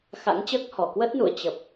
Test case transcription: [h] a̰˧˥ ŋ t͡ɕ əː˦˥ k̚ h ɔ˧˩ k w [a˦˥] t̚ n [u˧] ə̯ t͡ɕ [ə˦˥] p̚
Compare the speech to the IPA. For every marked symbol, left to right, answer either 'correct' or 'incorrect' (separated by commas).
incorrect, incorrect, incorrect, incorrect